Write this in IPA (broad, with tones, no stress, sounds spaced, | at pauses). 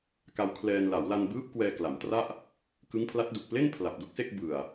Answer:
k a˧ w kʰ l ɛː˧ n l a˩˦ w l a˧ n b ɯː˦˥ p̚ k w ɛː˧ k l a˩˦ m t r a˥˩ ʔ | k ɯ˦˥ ŋ pʰ l a˦˥ t̚ d u˨˩ k̚ p l e˥˩ n pʰ l a˨˩ p̚ d u˥˩ k̚ s e˥˩ k̚ b ɯ˨˩ a̯